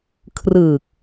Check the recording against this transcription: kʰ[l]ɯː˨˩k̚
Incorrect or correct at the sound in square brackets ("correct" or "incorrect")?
incorrect